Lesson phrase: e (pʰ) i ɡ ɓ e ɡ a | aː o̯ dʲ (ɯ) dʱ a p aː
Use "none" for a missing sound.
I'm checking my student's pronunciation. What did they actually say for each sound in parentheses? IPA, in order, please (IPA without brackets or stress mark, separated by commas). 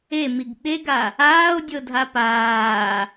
m, ɤ